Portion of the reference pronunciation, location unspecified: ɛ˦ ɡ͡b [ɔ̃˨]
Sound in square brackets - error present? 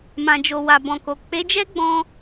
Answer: yes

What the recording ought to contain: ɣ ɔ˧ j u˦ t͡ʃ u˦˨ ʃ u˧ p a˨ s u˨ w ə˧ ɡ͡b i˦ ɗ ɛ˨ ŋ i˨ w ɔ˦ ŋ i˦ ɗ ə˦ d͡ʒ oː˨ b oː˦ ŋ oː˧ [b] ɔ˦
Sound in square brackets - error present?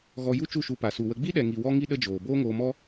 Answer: yes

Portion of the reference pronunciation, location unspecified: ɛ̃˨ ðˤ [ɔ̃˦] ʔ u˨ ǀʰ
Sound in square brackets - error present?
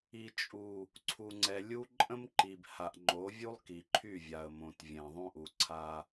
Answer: yes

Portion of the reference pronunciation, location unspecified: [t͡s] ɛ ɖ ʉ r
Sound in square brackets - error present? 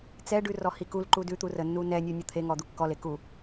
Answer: no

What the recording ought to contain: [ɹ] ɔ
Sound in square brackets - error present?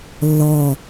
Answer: yes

